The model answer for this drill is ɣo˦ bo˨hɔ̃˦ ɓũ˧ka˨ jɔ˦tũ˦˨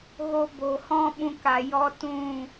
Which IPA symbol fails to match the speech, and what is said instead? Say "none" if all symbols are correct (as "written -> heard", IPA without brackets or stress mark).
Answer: none